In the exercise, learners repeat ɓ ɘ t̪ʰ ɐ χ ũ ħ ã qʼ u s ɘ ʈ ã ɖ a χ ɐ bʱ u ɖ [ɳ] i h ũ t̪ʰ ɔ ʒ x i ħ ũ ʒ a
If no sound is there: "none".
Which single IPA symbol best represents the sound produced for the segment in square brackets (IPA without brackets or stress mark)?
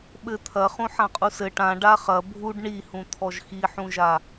ɳ